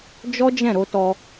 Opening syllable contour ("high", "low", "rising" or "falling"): high